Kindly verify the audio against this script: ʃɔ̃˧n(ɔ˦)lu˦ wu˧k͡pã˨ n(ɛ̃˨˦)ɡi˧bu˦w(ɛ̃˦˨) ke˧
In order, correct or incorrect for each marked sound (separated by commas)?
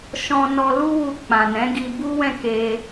incorrect, correct, correct